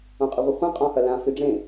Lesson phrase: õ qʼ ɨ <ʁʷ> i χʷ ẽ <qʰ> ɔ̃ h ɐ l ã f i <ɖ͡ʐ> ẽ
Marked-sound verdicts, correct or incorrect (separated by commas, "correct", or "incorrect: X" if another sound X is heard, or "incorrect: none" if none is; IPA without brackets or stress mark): correct, incorrect: qʼ, correct